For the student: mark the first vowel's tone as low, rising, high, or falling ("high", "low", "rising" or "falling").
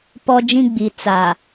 high